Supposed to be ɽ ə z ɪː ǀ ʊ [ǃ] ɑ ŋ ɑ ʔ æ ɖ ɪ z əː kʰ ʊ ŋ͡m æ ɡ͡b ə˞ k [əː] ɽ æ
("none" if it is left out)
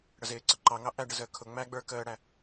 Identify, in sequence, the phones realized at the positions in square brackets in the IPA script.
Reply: ǃ, əː

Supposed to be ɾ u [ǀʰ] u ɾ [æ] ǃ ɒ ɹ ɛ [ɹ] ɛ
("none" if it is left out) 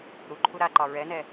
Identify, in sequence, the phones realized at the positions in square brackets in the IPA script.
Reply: ǃʰ, a, n

